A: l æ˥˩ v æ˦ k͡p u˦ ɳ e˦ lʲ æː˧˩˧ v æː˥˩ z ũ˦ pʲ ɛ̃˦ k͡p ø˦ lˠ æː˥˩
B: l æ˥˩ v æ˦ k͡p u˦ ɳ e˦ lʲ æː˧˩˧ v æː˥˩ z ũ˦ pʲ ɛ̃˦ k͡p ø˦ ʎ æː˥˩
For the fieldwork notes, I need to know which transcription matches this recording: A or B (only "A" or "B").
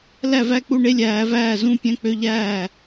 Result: B